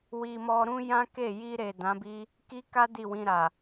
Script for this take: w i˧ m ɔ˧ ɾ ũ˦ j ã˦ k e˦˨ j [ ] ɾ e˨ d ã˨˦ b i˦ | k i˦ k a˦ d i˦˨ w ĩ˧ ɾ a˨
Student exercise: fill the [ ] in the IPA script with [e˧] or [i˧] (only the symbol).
i˧